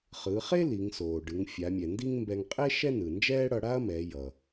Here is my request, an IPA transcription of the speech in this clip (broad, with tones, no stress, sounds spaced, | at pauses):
χ ɯ˩˧ χ e˥ l i˩˧ ŋ s oː˩ ɖ ɯ˩˧ ŋ fʲ a˩˧ mʲ ɛ˩ n d i˥ ŋ m b ɛ˧ ŋ qʼ e˥ ʃ ɛ˥ n ɯ˩ n d͡ʒ ɛː˥ ɽ ʌ˧ ɽ a˥ ɐ̯ m ɛ˩˧ j ʌ˩